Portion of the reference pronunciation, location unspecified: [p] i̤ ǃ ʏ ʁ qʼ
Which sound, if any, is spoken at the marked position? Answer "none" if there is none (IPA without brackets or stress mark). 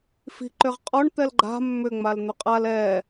f